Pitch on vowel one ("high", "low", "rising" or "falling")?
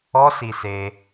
high